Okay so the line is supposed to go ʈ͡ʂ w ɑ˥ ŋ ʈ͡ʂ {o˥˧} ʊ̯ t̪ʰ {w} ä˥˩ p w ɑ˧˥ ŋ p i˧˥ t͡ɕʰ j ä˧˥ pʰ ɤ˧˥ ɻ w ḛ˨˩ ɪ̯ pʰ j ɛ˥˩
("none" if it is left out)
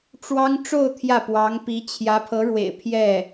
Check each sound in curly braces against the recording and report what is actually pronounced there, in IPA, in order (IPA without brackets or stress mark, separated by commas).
o˥˧, j